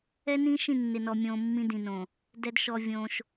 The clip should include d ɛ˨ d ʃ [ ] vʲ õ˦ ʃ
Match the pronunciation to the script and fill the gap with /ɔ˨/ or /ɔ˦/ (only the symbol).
ɔ˨